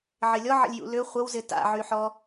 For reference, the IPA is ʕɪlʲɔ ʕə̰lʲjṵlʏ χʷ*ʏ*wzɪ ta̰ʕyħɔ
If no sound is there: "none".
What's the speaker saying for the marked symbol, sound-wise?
ə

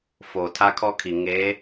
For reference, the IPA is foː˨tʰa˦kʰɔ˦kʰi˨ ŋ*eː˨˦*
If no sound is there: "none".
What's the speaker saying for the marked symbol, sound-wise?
eː˨˦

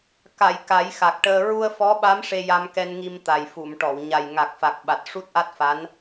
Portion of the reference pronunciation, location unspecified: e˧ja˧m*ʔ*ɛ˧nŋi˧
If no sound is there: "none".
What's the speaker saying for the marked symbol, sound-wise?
k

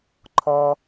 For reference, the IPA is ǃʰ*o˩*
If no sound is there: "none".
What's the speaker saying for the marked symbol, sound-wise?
ɔ˩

